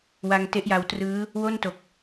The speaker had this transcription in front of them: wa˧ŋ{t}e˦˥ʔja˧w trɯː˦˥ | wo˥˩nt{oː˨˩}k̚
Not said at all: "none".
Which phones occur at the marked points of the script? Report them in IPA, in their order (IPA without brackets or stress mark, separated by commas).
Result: t, o˨˩